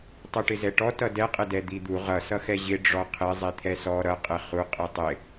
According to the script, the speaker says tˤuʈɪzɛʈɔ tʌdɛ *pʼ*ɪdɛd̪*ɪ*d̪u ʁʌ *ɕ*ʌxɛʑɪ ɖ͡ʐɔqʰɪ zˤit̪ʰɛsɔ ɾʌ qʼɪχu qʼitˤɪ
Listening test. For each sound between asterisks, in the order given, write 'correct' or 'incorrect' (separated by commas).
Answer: incorrect, incorrect, incorrect